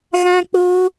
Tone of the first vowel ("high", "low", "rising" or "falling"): high